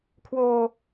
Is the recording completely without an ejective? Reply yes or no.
yes